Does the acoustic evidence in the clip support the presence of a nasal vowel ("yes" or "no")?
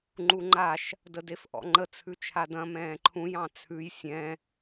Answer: yes